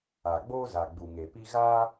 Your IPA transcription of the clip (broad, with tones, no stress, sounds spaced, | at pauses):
a˨ ɡ͡b oː˦ z a˨ ɡ͡b u˨ ŋ e˨ p i˧ ɣ aː˦